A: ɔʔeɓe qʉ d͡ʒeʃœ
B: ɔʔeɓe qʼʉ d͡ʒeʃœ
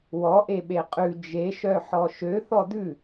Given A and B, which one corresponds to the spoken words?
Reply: B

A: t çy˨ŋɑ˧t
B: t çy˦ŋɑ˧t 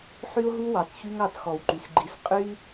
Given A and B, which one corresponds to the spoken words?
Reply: B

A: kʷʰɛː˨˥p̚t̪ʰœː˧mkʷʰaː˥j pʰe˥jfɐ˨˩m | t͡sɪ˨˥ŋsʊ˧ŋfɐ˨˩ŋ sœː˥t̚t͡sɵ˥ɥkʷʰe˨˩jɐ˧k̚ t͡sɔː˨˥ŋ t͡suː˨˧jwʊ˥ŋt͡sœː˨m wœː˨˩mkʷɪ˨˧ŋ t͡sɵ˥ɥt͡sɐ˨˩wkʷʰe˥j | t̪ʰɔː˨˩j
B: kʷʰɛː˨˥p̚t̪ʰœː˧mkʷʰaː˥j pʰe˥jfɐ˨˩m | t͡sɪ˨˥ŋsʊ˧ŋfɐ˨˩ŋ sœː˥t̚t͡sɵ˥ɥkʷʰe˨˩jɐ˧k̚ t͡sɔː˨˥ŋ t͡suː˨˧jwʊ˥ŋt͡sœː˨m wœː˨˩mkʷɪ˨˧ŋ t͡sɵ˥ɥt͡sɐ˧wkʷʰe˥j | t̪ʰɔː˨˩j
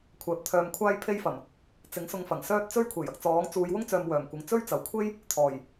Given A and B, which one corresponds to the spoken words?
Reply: A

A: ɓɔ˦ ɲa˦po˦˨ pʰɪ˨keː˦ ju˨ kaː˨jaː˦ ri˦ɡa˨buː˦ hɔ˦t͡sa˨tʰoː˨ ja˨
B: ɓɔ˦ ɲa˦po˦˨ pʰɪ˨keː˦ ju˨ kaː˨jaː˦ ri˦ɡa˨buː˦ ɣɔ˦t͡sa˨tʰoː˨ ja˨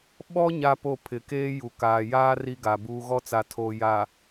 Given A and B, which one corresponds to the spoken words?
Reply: B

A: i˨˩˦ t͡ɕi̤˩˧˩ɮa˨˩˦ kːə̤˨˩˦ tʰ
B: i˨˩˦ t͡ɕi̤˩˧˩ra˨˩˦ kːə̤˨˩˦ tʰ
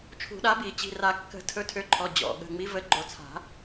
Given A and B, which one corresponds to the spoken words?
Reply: B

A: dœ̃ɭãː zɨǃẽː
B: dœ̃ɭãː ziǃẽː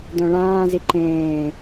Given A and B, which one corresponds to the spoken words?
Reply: B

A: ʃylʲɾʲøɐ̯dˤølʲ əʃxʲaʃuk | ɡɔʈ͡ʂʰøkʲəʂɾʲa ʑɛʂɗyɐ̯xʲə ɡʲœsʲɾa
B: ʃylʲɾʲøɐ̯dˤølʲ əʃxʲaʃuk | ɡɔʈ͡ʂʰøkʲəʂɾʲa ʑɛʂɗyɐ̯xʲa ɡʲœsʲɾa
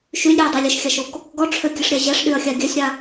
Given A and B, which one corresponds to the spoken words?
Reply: B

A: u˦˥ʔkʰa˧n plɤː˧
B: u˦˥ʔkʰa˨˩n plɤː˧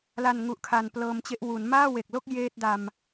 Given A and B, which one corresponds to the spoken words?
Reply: A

